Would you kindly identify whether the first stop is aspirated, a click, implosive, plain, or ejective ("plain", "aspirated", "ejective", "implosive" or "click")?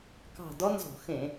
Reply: plain